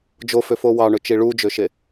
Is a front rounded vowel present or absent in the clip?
present